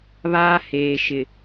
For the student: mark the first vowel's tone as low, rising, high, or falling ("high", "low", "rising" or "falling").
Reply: high